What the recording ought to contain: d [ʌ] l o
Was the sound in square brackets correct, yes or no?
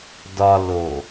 no